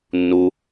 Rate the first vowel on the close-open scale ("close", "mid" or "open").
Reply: close